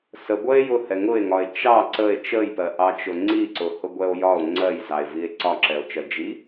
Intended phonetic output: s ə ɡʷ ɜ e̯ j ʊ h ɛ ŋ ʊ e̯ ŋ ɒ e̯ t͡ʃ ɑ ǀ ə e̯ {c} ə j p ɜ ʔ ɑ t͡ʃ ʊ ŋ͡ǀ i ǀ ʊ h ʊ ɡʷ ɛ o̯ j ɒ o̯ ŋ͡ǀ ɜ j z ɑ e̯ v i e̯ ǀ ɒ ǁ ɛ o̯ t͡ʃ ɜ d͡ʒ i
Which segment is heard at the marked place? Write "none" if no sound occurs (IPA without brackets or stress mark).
t͡ʃ